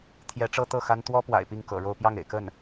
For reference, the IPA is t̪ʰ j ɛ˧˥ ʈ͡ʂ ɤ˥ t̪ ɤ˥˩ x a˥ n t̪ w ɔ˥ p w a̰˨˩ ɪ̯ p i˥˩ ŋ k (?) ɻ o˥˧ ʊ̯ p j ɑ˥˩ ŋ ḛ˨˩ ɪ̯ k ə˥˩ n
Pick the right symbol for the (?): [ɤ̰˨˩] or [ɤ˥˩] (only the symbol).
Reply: ɤ̰˨˩